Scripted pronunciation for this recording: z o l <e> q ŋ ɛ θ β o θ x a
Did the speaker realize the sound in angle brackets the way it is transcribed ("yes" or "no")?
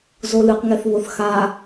no